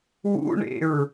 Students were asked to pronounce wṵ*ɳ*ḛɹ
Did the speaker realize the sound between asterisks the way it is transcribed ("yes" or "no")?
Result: yes